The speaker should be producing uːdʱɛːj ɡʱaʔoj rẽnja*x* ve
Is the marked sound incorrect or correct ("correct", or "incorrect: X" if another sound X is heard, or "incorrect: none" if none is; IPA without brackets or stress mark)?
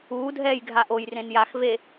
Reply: correct